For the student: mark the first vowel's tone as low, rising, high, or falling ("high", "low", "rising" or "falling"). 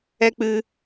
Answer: high